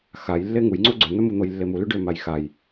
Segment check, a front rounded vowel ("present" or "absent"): present